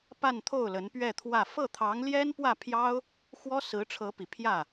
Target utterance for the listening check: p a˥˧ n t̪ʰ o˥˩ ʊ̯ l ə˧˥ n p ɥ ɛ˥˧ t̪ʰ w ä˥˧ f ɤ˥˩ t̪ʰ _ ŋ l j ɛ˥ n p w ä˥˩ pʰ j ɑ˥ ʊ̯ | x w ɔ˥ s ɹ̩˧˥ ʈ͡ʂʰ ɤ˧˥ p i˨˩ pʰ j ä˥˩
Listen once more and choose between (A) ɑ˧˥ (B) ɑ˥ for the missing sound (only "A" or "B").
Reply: A